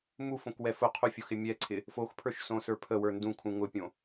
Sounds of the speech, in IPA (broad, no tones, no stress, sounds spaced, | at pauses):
m u f õ k w ɛ f ʊ qʰ u fʲ ʊ x ɪ mʲ ɛ ǀʰ ɪ | f o x pʰ ə˞ ʃ s õ s ə˞ pʰ ə w ə˞ n d ũ kʰ ũ ŋ ʊ pʲ õ